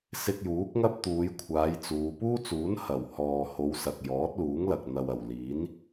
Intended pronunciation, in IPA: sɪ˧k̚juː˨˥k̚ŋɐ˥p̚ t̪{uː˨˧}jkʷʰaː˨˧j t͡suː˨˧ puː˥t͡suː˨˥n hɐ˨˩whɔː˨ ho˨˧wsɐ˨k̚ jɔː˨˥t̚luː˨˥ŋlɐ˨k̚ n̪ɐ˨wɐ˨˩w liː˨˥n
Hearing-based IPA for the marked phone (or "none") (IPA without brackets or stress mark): uː˨˧